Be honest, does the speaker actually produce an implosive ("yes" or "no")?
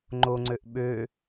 yes